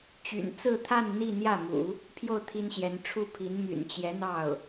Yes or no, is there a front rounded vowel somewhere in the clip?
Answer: yes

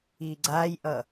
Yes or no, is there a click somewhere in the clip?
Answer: yes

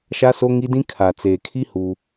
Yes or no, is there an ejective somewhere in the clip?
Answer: no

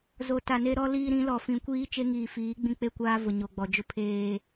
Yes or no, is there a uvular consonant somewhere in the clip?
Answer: no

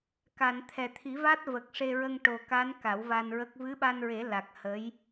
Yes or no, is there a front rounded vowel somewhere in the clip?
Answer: no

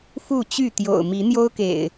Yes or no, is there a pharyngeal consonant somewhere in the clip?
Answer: no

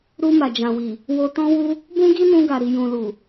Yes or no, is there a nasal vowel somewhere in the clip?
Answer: yes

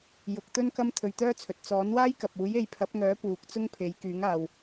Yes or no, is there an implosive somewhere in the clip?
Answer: no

